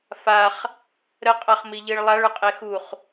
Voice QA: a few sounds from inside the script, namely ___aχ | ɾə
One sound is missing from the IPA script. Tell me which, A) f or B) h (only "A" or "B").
A